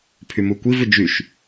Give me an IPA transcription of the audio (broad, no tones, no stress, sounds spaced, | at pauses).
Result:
pʰ y m u kʷ i v ʏ d͡ʒ y ʃ